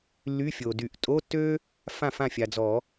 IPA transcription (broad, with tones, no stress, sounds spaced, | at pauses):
lː y˧˥˧ fʲ o˨ d y˨˩˦ ʔ tʼ o˧˥˧ tː ø˥ | f ã˥˩ f ã˥˩ fʲ a˨ d͡z ɔ˨˩˦